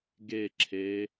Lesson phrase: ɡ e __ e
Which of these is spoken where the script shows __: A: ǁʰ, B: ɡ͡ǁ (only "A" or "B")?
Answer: A